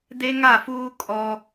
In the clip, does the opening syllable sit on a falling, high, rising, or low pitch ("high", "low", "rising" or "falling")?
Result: high